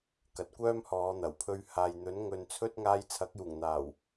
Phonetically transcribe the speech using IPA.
k ɐ˨˥ t̚ kʷ œː˥ m h ɔː˨˧ n̪ ɐ˨˩ w pʰ ɵ˧ ɥ h aː˨ j n̪ ɵ˨˥ n ŋ ɵ˧ n t͡sʰ ɵ˥ t̚ ŋ aː˧ j t͡sʰ ɐ˨˥ k̚ j uː˨˩ ŋ n̪ aː˨˩ w

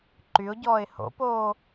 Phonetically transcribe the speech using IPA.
ǃ y ʊ̯ ɟ ɔː ɪ̯ h o̰ p oː

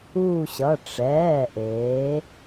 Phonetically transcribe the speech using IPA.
uː˦˨ ɕ ʌ˩˧˩ ʈ͡ʂ ɛː˩˧˩ ʔ eː˩˧

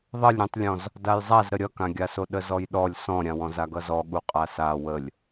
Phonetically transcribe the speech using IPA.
ðˤ ʌ lʲ ɾʲ ũ tˤ lʲ ɔ̃ z | d a j zˤ a z ɾ ə ɾʲ ʌ k ã ɡʲ a s o ɗ ə z ɔ j ɗ ɔ lʲ s ɔ̃ ɾʲ ã w ɔ̃ z a ɡ ʌ z ɔ ɠ u qʼ a s a w ə lʲ

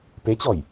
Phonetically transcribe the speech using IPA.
p e t͡ɕ ɔ j

